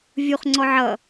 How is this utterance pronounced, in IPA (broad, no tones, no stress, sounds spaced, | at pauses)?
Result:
vʲ u χ ŋ͡ǀ ɔ ʕ ʌ